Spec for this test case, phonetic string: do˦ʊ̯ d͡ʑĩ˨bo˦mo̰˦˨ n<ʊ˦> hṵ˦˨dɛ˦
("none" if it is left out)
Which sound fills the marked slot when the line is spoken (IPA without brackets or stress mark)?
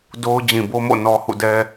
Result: ɔ˦